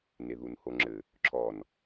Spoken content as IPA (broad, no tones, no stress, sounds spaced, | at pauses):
n e ð u n h o ŋ͡ǁ ɘ | ǁʰ ɔ n